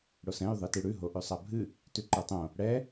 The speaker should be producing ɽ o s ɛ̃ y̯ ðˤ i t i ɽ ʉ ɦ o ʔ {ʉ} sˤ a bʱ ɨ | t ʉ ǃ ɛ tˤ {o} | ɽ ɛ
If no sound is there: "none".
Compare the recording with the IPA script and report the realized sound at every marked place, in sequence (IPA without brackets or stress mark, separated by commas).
ʉ, õ